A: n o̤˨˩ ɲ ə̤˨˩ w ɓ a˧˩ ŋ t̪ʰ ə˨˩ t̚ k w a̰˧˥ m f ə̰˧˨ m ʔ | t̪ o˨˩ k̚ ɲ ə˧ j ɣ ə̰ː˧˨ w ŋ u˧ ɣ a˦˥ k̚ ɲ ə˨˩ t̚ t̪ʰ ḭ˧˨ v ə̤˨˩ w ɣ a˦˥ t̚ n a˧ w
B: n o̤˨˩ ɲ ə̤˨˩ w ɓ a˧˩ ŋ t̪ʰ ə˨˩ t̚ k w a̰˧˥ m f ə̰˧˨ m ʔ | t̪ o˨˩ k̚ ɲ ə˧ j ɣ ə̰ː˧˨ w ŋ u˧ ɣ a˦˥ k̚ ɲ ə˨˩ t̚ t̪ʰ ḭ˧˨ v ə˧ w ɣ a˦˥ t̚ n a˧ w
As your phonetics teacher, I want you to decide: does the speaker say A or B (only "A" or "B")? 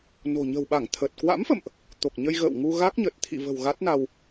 A